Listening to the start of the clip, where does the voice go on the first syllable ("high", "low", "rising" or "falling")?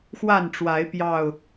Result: falling